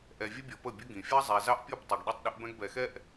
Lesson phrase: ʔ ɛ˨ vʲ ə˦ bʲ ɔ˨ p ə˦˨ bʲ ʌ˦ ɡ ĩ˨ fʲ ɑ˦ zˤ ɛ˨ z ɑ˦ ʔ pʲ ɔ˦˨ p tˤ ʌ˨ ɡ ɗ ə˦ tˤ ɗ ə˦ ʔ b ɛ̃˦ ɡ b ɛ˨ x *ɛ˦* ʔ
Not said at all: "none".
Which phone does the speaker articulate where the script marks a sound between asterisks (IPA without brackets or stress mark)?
ɛ˦